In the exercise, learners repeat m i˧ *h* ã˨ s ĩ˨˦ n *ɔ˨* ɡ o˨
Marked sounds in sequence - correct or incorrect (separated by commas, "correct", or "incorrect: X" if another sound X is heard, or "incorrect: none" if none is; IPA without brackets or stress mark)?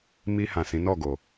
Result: correct, incorrect: ɔ˦˨